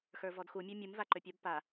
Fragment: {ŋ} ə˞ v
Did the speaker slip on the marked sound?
yes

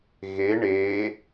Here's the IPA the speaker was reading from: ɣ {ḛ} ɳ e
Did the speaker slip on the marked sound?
yes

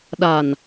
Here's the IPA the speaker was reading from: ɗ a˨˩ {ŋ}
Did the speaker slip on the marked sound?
yes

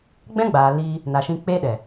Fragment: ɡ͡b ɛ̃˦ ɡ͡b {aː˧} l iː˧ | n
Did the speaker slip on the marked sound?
yes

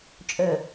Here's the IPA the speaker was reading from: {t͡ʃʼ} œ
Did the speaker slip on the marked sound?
no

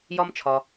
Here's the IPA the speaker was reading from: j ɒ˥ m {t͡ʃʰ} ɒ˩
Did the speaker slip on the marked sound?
no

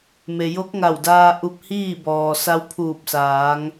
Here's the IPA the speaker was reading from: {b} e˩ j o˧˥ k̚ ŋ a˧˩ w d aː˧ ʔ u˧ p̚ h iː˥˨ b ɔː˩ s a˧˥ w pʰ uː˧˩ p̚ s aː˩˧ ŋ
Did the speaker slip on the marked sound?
yes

